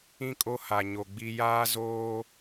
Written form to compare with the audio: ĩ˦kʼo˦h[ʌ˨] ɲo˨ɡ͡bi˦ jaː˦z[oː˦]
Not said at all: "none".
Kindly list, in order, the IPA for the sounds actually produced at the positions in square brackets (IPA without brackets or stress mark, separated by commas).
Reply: a˨, oː˦